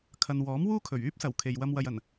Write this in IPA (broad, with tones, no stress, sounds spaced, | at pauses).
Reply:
kʰ ɐ˨ n w ɔː˨˥ m w uː˥ kʰ ɵ˨˩ ɥ yː˥ p̚ s ɐ˨˩ w kʰ e˨ j w ɐ˧ m w ɐ˨ j ɐ˨˩ n